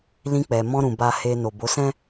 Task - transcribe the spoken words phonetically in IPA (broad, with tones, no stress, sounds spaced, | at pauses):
l ĩ˧ k͡p ɛ˨ m ɔ̃˧ ɾ ũ˨ b a˨ h e˨ n o˨ b o˨˦ s ɛ̃˦